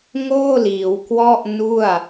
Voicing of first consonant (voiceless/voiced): voiced